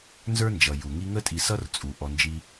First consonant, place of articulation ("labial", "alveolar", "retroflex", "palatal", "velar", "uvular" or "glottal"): alveolar